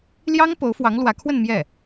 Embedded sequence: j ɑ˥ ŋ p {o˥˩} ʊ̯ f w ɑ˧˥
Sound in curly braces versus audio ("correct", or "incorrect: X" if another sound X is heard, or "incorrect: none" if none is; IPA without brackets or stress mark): incorrect: o˧˥